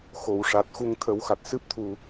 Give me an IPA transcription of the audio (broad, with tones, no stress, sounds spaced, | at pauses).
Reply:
x o˨˩˨ w ʂ a˨˩ t̚ x u˧ ŋ t̪ʰ ə˨˩˦ w x a˨˩ t̚ s ɨ˦˥ p̚ t̪ʰ u˨˩